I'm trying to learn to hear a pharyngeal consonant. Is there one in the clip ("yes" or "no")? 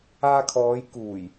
no